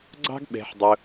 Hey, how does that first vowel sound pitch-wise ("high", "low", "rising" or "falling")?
high